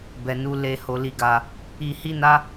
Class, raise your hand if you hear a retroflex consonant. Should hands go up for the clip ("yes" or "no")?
no